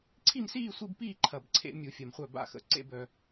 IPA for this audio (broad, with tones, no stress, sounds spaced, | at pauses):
ǀʰ i˥˧ m s iː˥˧ sʷ i˥˧ b p iː˥˧ ǃʰ ɐ˨˩ b ǀʰ ḛ˧˩˧ mʲ u˧˩˧ fʲ ɐ˨˩ m χʷ œ˥˩ b a̰˥˩ x ə̰˨˩ ǀ ḛ˧˥˧ b œ˨˩